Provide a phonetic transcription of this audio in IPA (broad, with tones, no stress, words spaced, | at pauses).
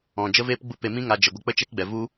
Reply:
ɔ̃˨ d͡ʒə˧veː˧pɡ͡bu˧ pe˧mĩ˦ŋa˧ d͡ʒə˨ɡʷə˧ k͡pə˦t͡ʃɛ˦kɡ͡bɛ˨ vu˦